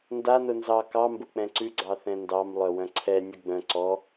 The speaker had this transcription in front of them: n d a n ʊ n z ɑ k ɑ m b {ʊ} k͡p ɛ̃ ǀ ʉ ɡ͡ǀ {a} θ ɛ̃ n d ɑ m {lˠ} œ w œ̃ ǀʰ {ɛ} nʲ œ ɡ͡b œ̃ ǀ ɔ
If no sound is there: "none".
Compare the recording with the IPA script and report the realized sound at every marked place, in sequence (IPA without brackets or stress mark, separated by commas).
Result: ʊ, ɑ, lˠ, ɛ